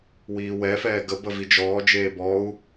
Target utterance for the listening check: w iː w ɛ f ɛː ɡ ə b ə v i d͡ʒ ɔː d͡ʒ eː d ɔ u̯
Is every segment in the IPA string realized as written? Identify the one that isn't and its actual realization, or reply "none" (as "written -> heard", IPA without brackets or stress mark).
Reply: d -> b